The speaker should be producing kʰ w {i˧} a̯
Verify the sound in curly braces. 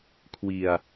correct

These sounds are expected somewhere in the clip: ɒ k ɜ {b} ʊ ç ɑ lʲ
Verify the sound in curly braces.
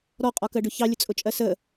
incorrect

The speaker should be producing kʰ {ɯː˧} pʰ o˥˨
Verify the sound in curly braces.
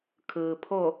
incorrect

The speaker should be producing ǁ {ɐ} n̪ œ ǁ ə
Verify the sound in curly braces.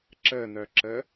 incorrect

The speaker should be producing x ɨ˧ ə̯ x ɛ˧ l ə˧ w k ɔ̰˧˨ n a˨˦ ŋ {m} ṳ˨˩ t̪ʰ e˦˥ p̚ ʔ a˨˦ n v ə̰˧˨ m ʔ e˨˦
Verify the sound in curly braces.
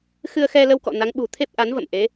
incorrect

